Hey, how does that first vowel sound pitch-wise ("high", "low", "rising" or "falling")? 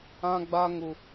high